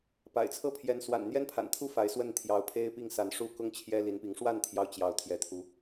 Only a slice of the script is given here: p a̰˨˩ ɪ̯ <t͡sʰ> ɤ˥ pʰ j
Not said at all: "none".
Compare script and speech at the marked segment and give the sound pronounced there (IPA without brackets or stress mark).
t͡sʰ